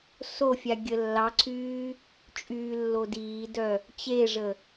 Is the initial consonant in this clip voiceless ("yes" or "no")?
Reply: yes